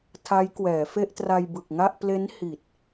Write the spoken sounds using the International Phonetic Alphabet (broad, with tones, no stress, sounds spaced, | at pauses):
tʰ a˦˥ j k w ɛː˩˦ f e˥˩ ʔ t r a˧ j b ɯ˨˩ k̚ ŋ a˥˩ ʔ p l e˦˥ n h i˨˩ t̚